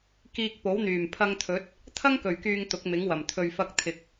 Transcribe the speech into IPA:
k iː˧ k̚ p o˨˥ w n̪ yː˨˩ m pʰ ɐ˧ ŋ t̪ʰ ɵ˨˥ t̚ | t̪ʰ ɐ˥ ŋ k ɵ˨˩ ɥ k yː˨ ŋ t̪ ʊ˨˥ k̚ m ɪ˨˥ ŋ w ɐ˨˩ m t̪ʰ ɵ˨ ɥ f ɐ˧ k̚ t̪ʰ ɪ˨ k̚

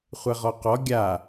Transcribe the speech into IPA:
χʷ e ʁ ɔ q ɔ ɡʲ a

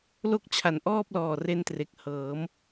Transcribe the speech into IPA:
l o˦˥ k̚ t͡ɕʰ a˨˩ n ʔ ɔː˥˩ p̚ l ɔː˨˩ r e˧ n t r e˨˩ k̚ h ɤː˩˦ m

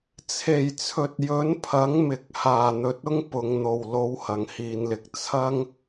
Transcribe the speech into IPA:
t͡sʰ e˨˩ j t͡sʰ ɵ˨ t̚ j ɵ˨˥ n pʰ ɐ˨˥ ŋ m ɪ˨ k̚ h aː˨˩ n̪ ɵ˨ t̚ ʊ˥ ŋ p ʊ˨ ŋ n̪ o˨˩ w l o˨˥ w h ɐ˨˩ ŋ h iː˨ n l ɪ˨ k̚ t͡sʰ ɐ˥ ŋ

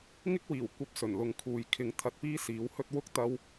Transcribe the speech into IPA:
ŋ ɪ˥ k̚ w iː˨˩ w kʷ ɐ˧ p̚ s ɵ˨˩ n l ʊ˨ ŋ kʰ uː˨ j kʰ ɪ˧ ŋ t̪ʰ ɐ˧ t̚ p iː˥ s iː˨˥ w h ɵ˥ t̚ w ʊ˥ k̚ t̪ ɐ˥ w

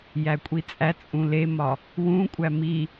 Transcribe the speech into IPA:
j æ kʷʼ i t͡sʼ æ t͡sʼ ũ l e m ɒ | w ũ kʷʼ æ m i

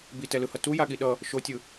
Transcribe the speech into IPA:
b i t ɛ l ɯ h ʌ t u j a ɠ i ɗ ʌ | ʃ o tʲ ɯ

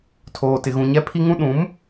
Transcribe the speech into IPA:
tʰ oː˦ t ɪ˦ ɣ ũ˦ ɲ ɛ˦ pʰ i˦ ŋ ũ˦ ɗ ũ˨˦ m

